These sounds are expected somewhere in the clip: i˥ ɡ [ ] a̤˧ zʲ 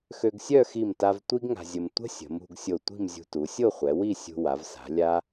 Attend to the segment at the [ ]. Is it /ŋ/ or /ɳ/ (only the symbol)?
ŋ